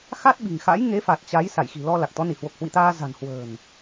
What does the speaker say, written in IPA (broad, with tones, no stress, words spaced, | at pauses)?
xa˦˥t̚ɓi̤˨˩ŋxa̰˧˥j ŋe˨˦fa˨˩t̚ t͡ɕa˨˦j sa˧˩jxi̤˨˩ lɔ˧ la˨˩k̚t̪ɔ˨˦ni˧˩ hwo˨˩k̚hwḭ˧˨t̪aː˧ za̤˨˩nhwə̤ː˨˩n